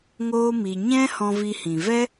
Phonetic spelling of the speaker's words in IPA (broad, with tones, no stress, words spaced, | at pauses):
ŋoː˦mi˧ ɲɛ̃˦ hɔ̃˧vi˧hĩ˨ vɛ˦